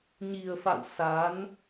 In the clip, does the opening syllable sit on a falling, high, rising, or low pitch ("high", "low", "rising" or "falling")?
low